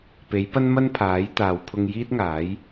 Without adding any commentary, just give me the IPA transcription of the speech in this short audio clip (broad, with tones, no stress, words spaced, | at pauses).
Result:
pe˨˥jpɐ˥nmɐ˥n pʰaː˨˥jt̪aː˨w pʰʊ˧ŋjiː˥t̚ŋaː˨˥j